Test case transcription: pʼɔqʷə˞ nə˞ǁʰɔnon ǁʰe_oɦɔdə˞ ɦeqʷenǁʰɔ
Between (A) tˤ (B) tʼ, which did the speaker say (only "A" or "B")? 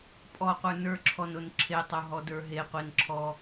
A